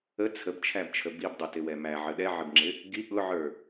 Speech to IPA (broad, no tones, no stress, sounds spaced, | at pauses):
ə t͡sʰ ə b t͡ʃʰ æ b t͡ʃʰ ə b i b dˤ ə t ɪ w ɛ m æ ʕ ə ɗ ɛ ʕ ɪ b ŋ͡ǁ ɪ | ɡ i ɠ ʊ ʕ ə˞